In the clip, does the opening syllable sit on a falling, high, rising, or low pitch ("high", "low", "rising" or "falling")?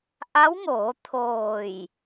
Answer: rising